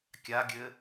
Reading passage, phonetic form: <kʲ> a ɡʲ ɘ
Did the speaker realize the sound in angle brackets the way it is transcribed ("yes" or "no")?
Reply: yes